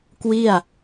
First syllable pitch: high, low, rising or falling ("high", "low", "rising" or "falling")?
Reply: falling